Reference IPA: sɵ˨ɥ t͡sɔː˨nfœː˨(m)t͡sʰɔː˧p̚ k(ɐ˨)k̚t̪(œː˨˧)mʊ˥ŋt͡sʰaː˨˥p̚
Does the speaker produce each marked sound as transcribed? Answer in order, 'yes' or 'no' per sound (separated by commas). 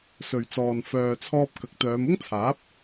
no, no, yes